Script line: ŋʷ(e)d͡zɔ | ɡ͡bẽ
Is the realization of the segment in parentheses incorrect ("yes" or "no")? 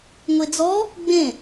no